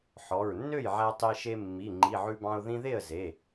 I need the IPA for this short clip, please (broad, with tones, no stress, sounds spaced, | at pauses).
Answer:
ħ ɔ˩˧˩ ɹ nː ø˥˩ j ʕ æ˧ tˤ e˧ ʃ e˧ mː i˩˧˩ ŋ͡ǃ i˩˧˩ ʕ ʉ˧ b ɑ̃˧ ʊ̯ ð ĩ˧ ð e˥˩ ə̯ z e˩˧˩